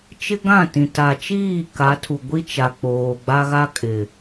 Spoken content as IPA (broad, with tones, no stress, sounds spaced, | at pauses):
t͡ʃ ɪ˦ ɡ ã˦˨ t ĩ˨ t a˨ t͡ʃ iː˦˨ k a˨˦ tʰ u˨ ɡʷ i˦ t͡ʃ a˨ k͡p oː˨ ɡ͡b a˦ ɣ a˦ kʼ ɪ˨